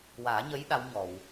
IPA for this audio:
w aː˨˩˦ ɲ ə˧˥ j ɗ a˧˥ w ɲ ɔ˨˩˨ w

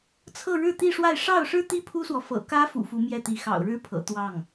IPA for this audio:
t͡sʰ ɤ˥˧ ɻ ɻ̩˥˧ t̪ i˥˧ ʂ w a˥˧ ɪ̯ ʂ ɑ˥˩ ʊ̯ ʂ ɻ̩˥ t̪ i˥ pʰ u˥ s w ɔ˨ f ɤ̰˨˩ k ä˥ f ṵ˨˩ f u˧˥ m j ɛ˥˩ t̪ i˧˥ x ɑ̰˨˩ ʊ̯ ɻ ɻ̩˥ pʰ ɤ̰˨˩ t̪ w ɑ˥˩ ŋ

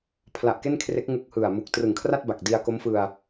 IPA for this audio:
pʰ l a˨˩ ʔ k e˥˩ n kʰ r e˦˥ k̚ ŋ u˦˥ k̚ h ɯ˨˩ a̯ m u˨˩ k̚ t r ɯ˨˩ ŋ kʰ r a˥˩ t̚ b a˨˩ k̚ d i˧ a̯ k o˦˥ m f ɯ˧ a̯

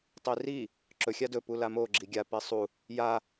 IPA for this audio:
tˤ i r i | ǁ ɵ xʲ a d ɵ p u l a m o ɡ͡ǁ i ɡʲ a p i sˤ u | j a

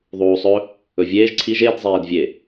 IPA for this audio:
ðˤ uː sˤ ɵ | ɵ vʲ eː ʒ ǀʰ i ʒ e d zˤ eː d vʲ e

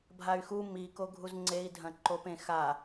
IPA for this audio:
bʱ a y̯ x u m i k o ɡʱ u z ŋ͡ǀ e i̯ dʱ ɐ̃ ǃ o p ẽ x a

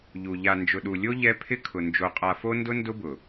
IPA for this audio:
ʎ u˨ ʎ a˨ n d͡ʒ ʊ˨ ɗ u˨ lʲ o˦ ʎ ɛ˦ pʰ ɪ˦ kʰ ʊ˨ n d͡ʒ o˨ qʼ a˨ f o˦ n d ʊ˦ n d ʊ˦ b ʊ˨

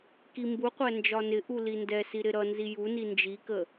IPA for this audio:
k i m b u qʷ æ n d͡ʒ ɒ n ɪ ʔ u l i n d ɛ s i ɾ ɪ ɾ ʌ n z i j u n i n d͡ʒ i k ə

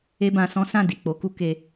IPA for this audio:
e˦ b ã˧ s ɔ̃˦ s ã˦˨ d i˨ k͡p o˨˦ k u˦ k e˧

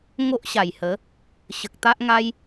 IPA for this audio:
ŋ o˦ ʔ ɕ a˨˩ j h ə˨˦ | ɕ ə˨ k̚ t̪ a˦ ʔ ŋ a˦ j

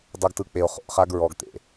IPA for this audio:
dˤ o˦ ɡ t ɯ˦ k͡p e˧ o̯ χ o̰˨ ʔ χ a˦ ɡ ɹ ɔ˧ ɡ t̪ ḛ˨

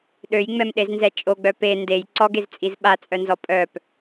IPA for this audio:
ɗ ø j ŋ͡m ɛ m ɗ e z n z ɛ t͡ʃʼ o ɡ͡b œ p e n d e j ǀ ɔ ɡ e z t͡sʼ i z ɓ a t͡sʼ œ n z ɔ pʼ œ p

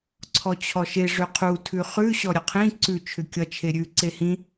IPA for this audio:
ǀʰ ɔ t͡ɕʰ ɔ ʃ e ʐ ʏ qʰ u tʰ ʉ χ ʉ ɕ ɔ ɾʲ ʌ qʰ ĩ ǀ ʉ t͡ʃʰ ʏ kʲ ʌ t͡ʃʰ e ɾʲ ʉ ǀ e h ĩ

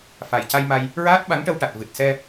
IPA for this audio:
f a˨˩ j c a˧ j m a˧ j | ɹ aː˦˥ t̚ ɓ a˧˥ ŋ ʈ ə˧ w ʈ a˨˩ t̚ v ɨ˨˩ t̚ s ɛ˧

